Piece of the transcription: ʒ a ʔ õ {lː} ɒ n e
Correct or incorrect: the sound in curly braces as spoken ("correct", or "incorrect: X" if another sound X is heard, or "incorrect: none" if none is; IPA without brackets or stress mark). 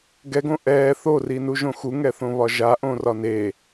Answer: incorrect: r